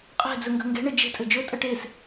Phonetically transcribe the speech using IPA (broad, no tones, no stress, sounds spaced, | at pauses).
qʼ e̤ d͡z ɵ ŋ ɡ ə̤ ŋ ɡ e̤ ɳ ɘ d͡ʒ e̤ tʼ ɘ d͡ʒ ɵ tʼ ə ʈ e s